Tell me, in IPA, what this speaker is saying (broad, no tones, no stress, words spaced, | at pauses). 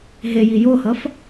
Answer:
ɦeji johʌf